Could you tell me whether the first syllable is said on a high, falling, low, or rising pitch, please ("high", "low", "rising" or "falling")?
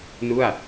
falling